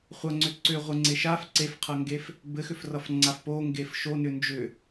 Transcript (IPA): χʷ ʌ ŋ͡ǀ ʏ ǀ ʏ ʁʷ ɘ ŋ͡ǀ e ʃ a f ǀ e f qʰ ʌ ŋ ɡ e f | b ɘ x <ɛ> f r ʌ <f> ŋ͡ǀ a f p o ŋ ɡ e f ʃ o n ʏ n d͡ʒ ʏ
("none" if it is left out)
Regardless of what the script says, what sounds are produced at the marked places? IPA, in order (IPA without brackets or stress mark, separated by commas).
ʏ, f